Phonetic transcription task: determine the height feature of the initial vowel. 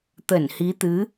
mid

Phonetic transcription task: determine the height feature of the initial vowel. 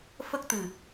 mid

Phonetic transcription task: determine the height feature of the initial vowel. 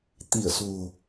high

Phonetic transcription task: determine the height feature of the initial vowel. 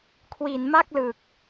high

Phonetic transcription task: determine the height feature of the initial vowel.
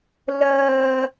mid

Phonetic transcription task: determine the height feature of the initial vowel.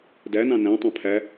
low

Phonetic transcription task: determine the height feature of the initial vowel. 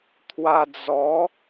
low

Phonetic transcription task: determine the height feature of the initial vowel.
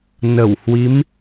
mid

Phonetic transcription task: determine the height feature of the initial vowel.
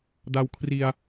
low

